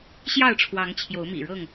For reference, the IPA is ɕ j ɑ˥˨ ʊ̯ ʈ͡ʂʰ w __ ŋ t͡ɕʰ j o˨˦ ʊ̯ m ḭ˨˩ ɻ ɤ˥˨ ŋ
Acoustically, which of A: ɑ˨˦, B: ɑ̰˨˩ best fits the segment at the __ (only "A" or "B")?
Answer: A